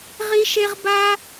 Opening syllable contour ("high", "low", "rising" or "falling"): high